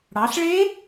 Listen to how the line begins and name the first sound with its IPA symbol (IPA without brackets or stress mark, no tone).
ɽ